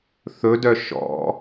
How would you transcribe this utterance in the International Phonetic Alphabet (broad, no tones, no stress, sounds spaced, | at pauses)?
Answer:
θ ɵ d œ ʃ ɔ̰